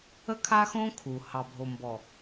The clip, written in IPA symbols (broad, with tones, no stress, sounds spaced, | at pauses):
ə˦ kʰ a˦ x õ˦ kʰ u˨ h ɑ˨ bʱ o˨ m b ɔ˨